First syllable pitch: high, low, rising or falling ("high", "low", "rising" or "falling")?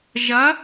rising